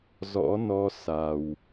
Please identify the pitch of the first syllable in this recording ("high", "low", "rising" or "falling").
rising